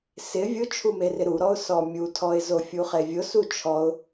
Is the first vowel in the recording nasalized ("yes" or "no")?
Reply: no